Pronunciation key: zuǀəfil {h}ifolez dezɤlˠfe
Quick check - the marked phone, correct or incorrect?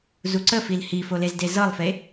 correct